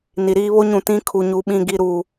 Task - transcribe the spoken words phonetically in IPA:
n i˨ ɾ iː˦ β o˦ ɲ ũ˨ t ĩ˦ kʰ u˨ ɲ u˨ ɓ ĩ˨ ɡ i˨ ɾ u˨

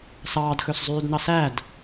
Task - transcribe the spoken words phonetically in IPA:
s ɑː d x ɵ s zˤ yː d n ɑ s æ d

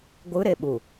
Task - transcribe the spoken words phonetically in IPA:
ɡʷ ɯ ɾ e ɓ u

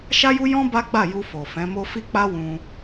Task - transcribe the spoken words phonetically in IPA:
ʃ a˦ j u˦ j ɔ̃˦ b a˦ ɡ͡b a˦˨ j u˧ f o˨ f ɛ̃˨˦ m o˦ f i˦ k͡p a˦ w ũ˧

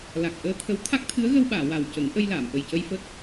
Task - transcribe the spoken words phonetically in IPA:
l a˨˩ k̚ ʔ əː˧ t̪ʰ ə˧˥ w t̪ʰ a˦˥ k̚ t̪ʰ ɨ˧˥ ə̯ ɣ ə˧ w ɓ aː˨˩˨ w a˨˩ w c ə˨˩˦ ŋ ʔ ə˧ j l aː˨˩˨ m ʔ ə˨˩ j c ə˧ j f ə˦˥ k̚

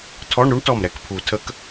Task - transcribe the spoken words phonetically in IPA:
tʰ ɔ˧˥˧ ɳ ɾ u˥ ɳ t ɔ˧˩ m ɾ ɛ˧˩ k pʰ u˨˩˦ tʰ ə˧˥˧ k

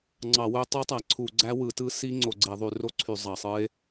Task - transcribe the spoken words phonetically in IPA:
ŋ͡ǀ ɑ˧˩˧ w ø˦˥ tˤ ø˦˥ tˤ æ˧˩˧ ǀʰ u˧˩˧ ɡ͡ǀ æ˦˥ w ɯ˧˩˧ t ɯ˦˥ s i˦˥ ŋ͡ǀ o˧˩˧ ɡ͡ǀ e˧˩˧ ðˤ y˧˩˧ r o˦˥ ǀʰ y˧˩˧ zˤ ɑ˧˩˧ sˤ ɯ˦˥ e̯

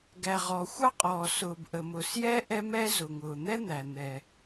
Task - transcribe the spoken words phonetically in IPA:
ɡ æ˩ ʁ ɔ˩ xʷ ɑ˥ qʼ ɔː˩ s ʊː˩ b ʔ ə˩ m ʊ˩ s j ɛ˥ ʔ ɛ˥ m ɛ˥ z ʊ˩ ŋ ʊː˩ n̪ ɛ˥ n̪ æ˩ n̪ ɛ˩

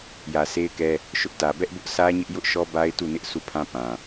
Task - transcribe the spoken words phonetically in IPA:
j ä˨ s e˦ ɪ̯ k ɛ˦ | ʃ ʊ˦ ʔ t ä˨ b ɛ˦ ʔ b ʊ˦ ʔ s ä˦ ɲ ɪ˦ ʔ j ʊ˦ ʔ ʃ ɔ˦ b a˦ ɪ̯ t u˦˨ n ɪ˦ ʔ s u˦˨ pʰ ã˦ p ã˨

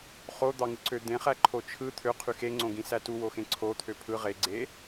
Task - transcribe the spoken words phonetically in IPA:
χ o d̪ ɑ ŋ ɯ ǀ ø d̪ ẽ χ æ ǃʰ o t͡ʃʰ ɯ t̪ʰ ø qʰ y x e ŋ͡ǀ õ ɡ ĩ s æ t u w o x ẽ ǀʰ o t̪ʰ ø pʰ ɯ ʁ e ɡ͡ǀ e

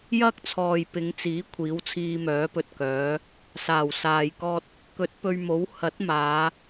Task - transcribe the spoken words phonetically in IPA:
j ɐ˥ k̚ t͡sʰ ɔː˨ j p ɪ˨˧ ŋ t͡s iː˨˥ kʷʰ iː˨˥ w t͡sʰ iː˧ m œː˨˥ p ɵ˧ t̚ k œː˨˥ | s aː˨˩ w s aː˨ j k ɔː˥ t̚ | k ɵ˨˥ t̚ p ɵ˧ ɥ m o˨˥ w h ɐ˨˥ t̚ m aː˨˧

